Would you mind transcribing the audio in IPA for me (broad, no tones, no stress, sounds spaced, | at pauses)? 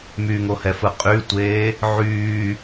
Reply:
m y ŋ o h ɛ f ɯ qʼ y tʷ eː | ʕ yː